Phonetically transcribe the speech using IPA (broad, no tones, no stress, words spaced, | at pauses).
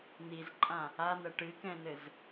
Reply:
n̪izǃʼã | anɐ ʈɨkɛ̃nɘz